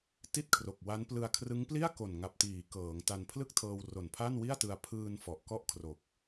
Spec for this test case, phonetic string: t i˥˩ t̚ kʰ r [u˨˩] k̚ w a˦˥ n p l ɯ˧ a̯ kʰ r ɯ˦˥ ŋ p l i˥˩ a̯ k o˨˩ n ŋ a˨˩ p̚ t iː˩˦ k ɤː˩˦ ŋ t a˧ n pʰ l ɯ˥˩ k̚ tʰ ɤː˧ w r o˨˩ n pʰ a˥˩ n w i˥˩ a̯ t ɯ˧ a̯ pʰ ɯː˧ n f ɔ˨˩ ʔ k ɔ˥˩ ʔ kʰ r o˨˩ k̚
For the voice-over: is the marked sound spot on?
no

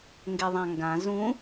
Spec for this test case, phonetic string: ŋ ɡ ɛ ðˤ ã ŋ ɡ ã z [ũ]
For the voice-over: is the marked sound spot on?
yes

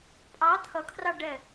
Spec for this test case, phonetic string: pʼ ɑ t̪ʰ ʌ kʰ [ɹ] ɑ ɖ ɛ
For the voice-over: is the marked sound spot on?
no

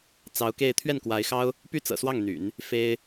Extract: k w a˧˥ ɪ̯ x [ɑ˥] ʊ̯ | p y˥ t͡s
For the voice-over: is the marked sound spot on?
yes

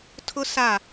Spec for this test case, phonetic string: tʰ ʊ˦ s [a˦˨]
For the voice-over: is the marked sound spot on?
yes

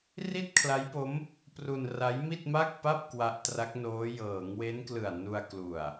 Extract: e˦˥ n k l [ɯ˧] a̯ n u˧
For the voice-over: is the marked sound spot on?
no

